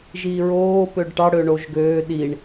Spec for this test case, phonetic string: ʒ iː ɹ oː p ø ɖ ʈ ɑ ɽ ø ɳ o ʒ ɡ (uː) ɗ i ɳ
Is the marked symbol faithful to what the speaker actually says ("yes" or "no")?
no